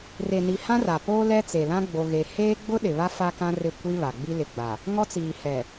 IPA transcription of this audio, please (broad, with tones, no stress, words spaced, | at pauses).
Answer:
re˨ni˨ hã˦ra˨ poː˦lɛ˦t͡se˨lã˦ ɡ͡bo˦ɣe˦ heː˦ɡ͡bʊ˦ ɗɪ˨βa˦ fa˦kã˦rɪ˦˨kʷi˦ βa˨ɡ͡bi˦lɪ˨ɡ͡ba˨ | ŋɔ˦t͡siː˨hɛ˨